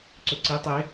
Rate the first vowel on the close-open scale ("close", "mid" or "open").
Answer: mid